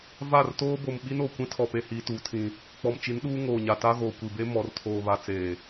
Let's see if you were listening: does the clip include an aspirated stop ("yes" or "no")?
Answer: yes